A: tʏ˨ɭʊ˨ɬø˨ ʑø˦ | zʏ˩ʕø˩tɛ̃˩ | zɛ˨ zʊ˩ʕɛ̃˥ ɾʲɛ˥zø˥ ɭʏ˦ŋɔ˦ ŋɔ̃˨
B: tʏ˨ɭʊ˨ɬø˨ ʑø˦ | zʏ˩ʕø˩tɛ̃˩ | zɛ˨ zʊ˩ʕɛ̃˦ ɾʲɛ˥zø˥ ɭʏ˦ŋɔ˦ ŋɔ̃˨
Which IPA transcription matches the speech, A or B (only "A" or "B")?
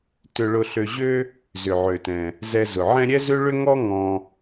B